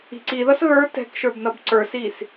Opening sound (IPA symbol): i̤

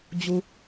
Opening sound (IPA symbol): d͡ʑ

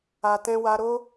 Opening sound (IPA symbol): a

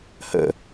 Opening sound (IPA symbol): h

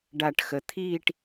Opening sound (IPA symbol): ɖ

